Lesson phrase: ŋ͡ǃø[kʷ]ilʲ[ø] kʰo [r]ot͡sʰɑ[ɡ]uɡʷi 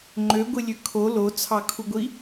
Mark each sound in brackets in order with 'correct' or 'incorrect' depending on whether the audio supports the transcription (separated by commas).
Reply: incorrect, correct, incorrect, incorrect